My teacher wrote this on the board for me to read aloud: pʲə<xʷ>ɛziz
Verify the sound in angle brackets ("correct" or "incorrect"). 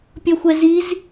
correct